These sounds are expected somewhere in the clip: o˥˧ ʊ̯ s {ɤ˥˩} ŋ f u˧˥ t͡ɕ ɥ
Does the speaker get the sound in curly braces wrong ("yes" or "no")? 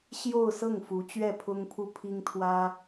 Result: no